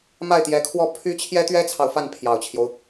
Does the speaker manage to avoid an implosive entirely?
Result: yes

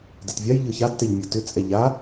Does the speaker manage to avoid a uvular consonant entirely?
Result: yes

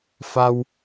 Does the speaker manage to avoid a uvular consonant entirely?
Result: yes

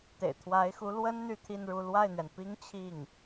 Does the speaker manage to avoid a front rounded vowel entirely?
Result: no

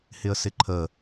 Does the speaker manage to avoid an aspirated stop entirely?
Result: no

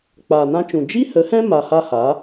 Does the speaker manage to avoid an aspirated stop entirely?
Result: yes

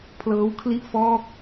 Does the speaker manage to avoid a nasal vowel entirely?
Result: yes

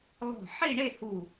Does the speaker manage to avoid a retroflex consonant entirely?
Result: no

